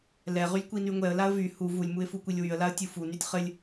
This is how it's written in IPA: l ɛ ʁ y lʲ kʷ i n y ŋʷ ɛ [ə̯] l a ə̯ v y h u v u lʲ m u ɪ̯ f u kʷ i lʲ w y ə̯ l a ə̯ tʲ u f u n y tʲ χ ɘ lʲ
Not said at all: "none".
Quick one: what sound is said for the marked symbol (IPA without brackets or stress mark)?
ə̯